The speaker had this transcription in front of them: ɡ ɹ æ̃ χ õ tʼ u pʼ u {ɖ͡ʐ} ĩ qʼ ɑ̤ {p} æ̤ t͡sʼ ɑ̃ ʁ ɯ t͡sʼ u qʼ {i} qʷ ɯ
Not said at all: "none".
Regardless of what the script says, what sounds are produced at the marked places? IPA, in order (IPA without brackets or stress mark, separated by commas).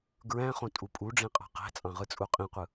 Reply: ɖ͡ʐ, q, ĩ